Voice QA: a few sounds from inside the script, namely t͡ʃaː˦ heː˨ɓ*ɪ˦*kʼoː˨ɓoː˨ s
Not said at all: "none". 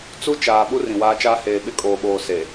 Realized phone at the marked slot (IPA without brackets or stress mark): ɪ˦